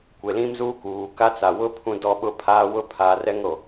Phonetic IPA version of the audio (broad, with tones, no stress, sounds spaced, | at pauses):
kʷ e˨ l ĩ˦ m z uː˦ k uː˨ k a˦ t͡s a˨ w ʊ˦ pʰ ũ˦ d ɔ˦ ɓ ʊ˦ pʰ aː˦ w ʊ˦ pʰ a˨ r ɛ˦ ŋ ɾ o˨